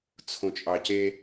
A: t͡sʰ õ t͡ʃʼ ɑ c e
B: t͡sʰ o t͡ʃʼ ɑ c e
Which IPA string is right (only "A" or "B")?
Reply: A